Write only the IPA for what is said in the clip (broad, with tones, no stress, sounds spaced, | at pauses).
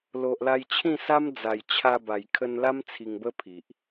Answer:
l o˨ ʔ l a˧ j t͡ɕʰ ĩ˥˧ s a˦ m d͡z a˨˩ j t͡ɕʰ a˧ b a˨˩ j kʰ ə˧ n l a˦ m t͡sʰ i˧ ŋ b ə˦ pʰ i˨ ʔ